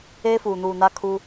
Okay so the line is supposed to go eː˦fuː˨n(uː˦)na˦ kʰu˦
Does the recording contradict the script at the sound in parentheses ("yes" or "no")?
yes